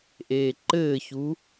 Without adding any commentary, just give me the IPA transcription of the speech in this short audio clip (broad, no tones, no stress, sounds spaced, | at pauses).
ʔ eː ǃ ɘː ç u